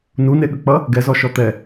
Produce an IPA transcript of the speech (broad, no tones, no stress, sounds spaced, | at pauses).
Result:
n u n e ɠ ə k͡p ʌ | ɡ ɛ z ɔ ʃ ɔ t̪ ɛ